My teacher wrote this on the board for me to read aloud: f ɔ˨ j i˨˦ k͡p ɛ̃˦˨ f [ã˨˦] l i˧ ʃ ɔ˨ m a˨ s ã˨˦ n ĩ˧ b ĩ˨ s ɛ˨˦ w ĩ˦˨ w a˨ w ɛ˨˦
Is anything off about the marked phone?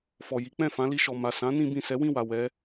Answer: no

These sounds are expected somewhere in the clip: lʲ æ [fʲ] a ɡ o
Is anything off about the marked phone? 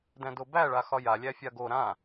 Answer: no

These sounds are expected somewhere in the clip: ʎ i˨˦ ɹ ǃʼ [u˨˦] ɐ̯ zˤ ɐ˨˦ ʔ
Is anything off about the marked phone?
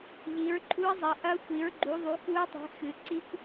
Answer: yes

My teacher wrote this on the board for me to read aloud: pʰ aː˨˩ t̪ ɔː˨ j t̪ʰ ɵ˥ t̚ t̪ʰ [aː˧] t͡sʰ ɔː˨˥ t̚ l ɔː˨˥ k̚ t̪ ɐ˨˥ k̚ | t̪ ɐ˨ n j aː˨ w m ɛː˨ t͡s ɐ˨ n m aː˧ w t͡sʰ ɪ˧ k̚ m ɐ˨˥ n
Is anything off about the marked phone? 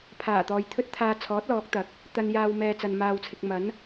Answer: no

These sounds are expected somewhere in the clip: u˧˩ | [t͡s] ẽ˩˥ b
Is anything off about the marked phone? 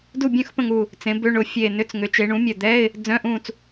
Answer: no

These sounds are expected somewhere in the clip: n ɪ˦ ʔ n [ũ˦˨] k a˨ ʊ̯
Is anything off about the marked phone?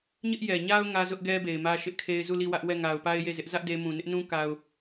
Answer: yes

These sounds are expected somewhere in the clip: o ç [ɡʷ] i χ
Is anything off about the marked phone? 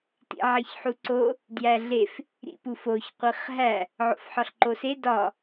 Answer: yes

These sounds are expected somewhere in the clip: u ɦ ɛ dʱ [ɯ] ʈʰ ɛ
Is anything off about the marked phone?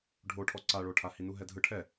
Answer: no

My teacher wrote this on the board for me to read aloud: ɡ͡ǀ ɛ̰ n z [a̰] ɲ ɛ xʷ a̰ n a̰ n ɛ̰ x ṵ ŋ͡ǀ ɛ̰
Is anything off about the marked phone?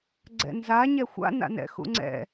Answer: yes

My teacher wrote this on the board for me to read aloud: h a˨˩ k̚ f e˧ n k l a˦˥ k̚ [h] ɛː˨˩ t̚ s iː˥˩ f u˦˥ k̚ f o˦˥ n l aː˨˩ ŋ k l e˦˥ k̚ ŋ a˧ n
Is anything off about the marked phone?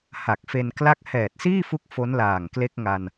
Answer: no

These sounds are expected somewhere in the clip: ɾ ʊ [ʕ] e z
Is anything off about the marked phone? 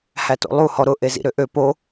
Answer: yes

